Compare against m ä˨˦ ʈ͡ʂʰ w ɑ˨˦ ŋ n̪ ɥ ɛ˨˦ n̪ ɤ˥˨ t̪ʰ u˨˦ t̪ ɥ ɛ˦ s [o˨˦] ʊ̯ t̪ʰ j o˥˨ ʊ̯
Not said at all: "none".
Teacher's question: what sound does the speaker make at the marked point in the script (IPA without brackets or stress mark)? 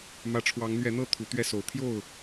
o˨˦